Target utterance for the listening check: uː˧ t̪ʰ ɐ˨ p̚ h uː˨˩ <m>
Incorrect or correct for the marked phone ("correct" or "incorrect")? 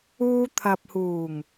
incorrect